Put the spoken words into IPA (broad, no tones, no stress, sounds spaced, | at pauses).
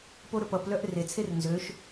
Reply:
p o ɾ ɵ p ʌ p l œ ʔ r e t͡sʰ e r n z ø ʃ